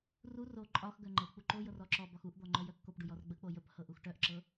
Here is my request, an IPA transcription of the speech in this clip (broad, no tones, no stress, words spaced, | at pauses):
ru ro ǃʼɒxɡœ ŋ͡ǃɤ k͡puǃojɤr ɔǁɔbɒx uʔd̪ɔ ŋ͡ǃœjœkːopɖuj ɔrɡ͡bək͡po jəp hɤʔuxʈœʔǁɤ